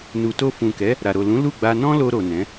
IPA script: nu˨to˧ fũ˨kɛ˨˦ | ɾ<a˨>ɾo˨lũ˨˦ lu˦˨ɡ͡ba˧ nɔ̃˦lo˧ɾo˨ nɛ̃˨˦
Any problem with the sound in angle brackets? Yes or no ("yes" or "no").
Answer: no